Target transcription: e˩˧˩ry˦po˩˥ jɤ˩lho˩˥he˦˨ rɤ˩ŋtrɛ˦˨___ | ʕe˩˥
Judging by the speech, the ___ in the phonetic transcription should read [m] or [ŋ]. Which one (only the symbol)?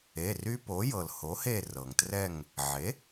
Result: ŋ